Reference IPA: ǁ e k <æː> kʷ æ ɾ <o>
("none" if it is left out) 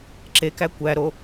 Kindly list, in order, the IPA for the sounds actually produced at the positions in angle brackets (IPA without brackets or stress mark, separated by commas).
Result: æ, o